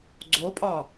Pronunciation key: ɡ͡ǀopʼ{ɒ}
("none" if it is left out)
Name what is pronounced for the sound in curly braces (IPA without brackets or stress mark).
ɒ